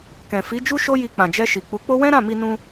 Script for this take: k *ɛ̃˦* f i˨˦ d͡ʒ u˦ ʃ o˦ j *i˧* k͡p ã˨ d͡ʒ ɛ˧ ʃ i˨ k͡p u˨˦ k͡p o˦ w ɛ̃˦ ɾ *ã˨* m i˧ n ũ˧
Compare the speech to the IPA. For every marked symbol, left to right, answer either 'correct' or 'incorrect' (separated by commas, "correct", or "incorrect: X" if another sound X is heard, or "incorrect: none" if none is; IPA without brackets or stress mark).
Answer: incorrect: ɛ̃˨, correct, incorrect: ã˦˨